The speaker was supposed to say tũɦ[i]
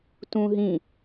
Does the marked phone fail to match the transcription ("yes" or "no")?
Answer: yes